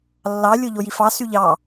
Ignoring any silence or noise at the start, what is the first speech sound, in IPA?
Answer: lː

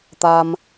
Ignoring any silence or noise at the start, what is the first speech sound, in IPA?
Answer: t̪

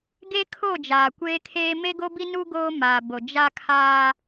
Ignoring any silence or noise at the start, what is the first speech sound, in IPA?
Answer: ɡ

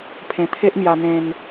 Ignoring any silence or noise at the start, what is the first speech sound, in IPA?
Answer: pʰ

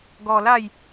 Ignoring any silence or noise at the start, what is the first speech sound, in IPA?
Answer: ɡ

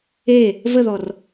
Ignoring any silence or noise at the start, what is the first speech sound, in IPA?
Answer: e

